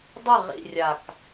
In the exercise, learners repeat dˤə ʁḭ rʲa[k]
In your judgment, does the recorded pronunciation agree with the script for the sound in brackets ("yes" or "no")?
yes